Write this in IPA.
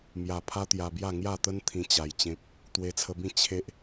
m j a˧ pʰ a˦ t̪ j a˧ b j a˥˧ ŋ j a˥˧ t̪ ə˦ n t̪ʰ ĩ˧ t͡ɕ a˧ j t͡ɕ ẽ˦ p̚ | t̪ w e˧ t͡sʰ ə˧ b ĩ˥˧ t͡ɕʰ e˦ ʔ

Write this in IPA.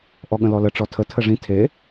ʔ ɔ ɠ ə̃ l ɔ l ə ʈ͡ʂ ɔ tʰ ə tʰ ə ʐ ĩ tʰ e

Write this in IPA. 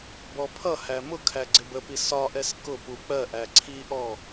b ɔ pʰ ʌ h æ m ʊ kʰ æ ɡ͡ǀ ɪ b ə p i s ɒ ʔ ɛ s k ʊ p u k͡p ɜ ʔ æ ǀʰ i ʔ ɔ

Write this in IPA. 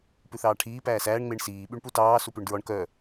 p ʉ θ ɑː ʈʰ iː p æː s æː ɳ ŋ͡m e ɳ s iː ɓ y ɳ p u t ɑː s u p ʉ ɳ d ɹ ɔ ɳ k œ

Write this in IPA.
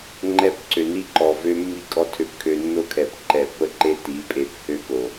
ŋ͡ǃ ɛ˦ p ǀ ø˨ n i˦ ǃ ɔ˨ v ø˦ mː i˦˨ kʼ ɔ˦ tʰ ø˦ p kʰ ø˦ nː o˦ kʰ ɛ˨ p ǃ ɛ˨ pː ə˦ ǃ e˦ t i˨˦ pʼ e˨ p h ø˦ k o˨

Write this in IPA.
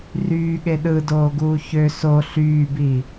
r yː ɠ e ɗ ɯ d oː ɡ uː ç ø s o ɬ yː b i

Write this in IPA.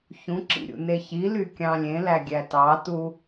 ç ũ ǁ ḭ ɾʲ ṵ n e ç i l y kʲ ɑ̃ lʲ ẽ l æ ɡʲ æ t ɑ t u

